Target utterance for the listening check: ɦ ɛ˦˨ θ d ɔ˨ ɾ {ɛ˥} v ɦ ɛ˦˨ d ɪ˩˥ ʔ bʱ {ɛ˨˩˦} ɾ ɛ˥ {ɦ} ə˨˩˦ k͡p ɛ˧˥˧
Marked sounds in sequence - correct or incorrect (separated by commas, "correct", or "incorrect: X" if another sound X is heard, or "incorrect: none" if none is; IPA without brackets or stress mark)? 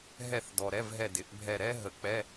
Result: incorrect: ɛ˧˥˧, incorrect: ɛ˦˨, correct